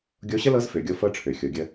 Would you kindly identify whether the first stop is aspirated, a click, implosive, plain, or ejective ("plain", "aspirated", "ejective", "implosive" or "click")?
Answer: plain